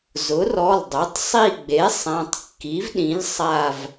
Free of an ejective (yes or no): yes